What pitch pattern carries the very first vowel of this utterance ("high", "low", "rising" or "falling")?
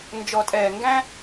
low